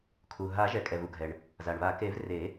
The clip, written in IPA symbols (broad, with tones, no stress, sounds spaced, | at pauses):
kʰ u˩ ɦ a˨˩˦ ʒ ɛ˩ kʼ ɛ˩ v u˩ ɡʱ ɛ˩ ɳ | z a˩ ɳ β a˨˩˦ k e˨˩˦ v r e˨˩˦